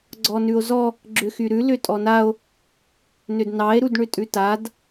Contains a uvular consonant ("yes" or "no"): no